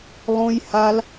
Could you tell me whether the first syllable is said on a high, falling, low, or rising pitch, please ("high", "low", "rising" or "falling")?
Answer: high